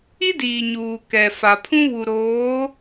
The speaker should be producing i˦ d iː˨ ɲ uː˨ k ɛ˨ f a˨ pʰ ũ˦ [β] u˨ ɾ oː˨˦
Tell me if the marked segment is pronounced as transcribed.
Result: yes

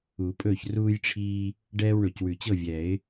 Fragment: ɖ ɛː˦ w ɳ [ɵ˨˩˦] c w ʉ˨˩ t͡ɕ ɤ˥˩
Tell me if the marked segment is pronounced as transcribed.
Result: no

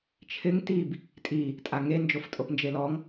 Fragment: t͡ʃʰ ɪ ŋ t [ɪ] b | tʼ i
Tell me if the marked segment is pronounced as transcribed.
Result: no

